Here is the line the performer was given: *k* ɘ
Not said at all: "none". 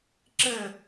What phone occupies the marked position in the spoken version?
ǁ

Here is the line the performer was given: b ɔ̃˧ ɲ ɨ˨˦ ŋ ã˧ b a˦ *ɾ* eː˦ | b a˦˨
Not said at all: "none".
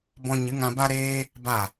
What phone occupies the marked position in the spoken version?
ɾ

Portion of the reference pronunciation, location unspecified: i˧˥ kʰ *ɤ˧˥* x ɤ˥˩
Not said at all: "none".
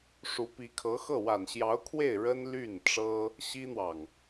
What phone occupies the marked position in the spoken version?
ɤ˧˥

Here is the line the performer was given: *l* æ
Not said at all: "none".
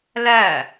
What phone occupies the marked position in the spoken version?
l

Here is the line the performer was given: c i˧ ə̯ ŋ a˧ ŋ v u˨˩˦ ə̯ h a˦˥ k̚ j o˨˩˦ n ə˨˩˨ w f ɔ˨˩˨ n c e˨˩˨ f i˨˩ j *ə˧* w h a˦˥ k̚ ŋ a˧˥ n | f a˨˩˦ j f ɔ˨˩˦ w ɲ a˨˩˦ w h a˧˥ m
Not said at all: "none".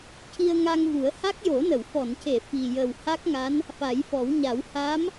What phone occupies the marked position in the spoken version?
ə˨˩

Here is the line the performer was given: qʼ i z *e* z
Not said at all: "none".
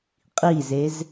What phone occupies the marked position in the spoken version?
e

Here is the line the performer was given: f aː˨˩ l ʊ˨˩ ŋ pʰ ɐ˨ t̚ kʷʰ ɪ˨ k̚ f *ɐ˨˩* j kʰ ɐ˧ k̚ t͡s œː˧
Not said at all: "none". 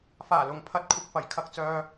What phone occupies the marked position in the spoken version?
ɐ˨˩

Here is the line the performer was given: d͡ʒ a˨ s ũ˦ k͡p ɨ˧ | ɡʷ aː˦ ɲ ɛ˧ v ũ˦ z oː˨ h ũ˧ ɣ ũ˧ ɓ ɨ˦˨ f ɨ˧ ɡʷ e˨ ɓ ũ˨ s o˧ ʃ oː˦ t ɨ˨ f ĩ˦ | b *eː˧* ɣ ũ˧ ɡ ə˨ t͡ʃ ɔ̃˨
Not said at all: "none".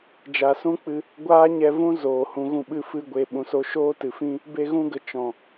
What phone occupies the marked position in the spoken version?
e˧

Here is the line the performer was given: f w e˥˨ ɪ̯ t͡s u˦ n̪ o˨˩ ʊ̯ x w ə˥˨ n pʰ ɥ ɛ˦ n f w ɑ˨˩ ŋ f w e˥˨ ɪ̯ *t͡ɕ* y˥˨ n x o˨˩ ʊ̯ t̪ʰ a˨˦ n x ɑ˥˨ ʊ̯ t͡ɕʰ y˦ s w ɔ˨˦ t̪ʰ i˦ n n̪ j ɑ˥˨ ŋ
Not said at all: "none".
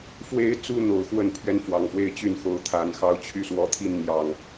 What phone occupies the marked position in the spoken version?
t͡ɕ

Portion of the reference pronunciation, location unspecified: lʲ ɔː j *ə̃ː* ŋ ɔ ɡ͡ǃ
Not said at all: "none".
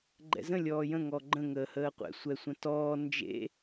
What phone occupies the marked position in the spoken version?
ə̃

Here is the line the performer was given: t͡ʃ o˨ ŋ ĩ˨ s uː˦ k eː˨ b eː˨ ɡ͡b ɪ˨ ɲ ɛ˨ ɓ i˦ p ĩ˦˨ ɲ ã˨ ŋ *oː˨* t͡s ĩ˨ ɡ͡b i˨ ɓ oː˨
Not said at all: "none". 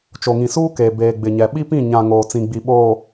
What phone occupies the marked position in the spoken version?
oː˨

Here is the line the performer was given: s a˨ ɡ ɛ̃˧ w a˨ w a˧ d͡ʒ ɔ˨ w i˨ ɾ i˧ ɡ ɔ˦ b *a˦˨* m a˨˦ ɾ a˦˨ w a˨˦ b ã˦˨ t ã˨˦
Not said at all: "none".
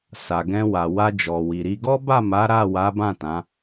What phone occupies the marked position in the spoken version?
a˦˨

